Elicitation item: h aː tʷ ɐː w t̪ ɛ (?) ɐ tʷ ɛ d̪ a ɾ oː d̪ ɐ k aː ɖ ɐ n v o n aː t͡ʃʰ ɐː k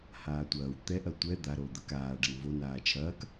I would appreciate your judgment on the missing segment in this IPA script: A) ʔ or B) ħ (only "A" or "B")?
A